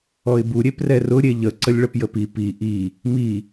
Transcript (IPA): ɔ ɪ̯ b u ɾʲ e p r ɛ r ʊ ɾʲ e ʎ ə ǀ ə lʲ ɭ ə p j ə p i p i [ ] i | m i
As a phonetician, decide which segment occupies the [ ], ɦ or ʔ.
ʔ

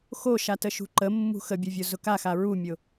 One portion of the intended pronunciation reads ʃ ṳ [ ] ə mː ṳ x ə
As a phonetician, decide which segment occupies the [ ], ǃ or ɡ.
ǃ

